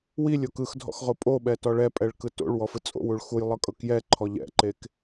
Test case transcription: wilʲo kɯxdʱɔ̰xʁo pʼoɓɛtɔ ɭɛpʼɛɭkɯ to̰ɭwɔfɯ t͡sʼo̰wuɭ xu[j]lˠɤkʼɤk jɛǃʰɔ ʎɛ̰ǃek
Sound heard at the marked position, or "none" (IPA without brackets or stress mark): j